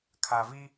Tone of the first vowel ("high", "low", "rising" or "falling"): low